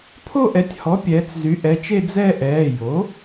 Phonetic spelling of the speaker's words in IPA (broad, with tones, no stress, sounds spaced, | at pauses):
pʰ o˥˧ ʔ ɛ˩˥ tʲ h ɔ˩˥ pʲ ɛː˩˧ t͡s z y˩˥ ʔ ɛ˩˧˩ t͡ʃ e˥˧ d͡z ɛ˥˧ ʔ ɛː˩˧˩ j o˩˥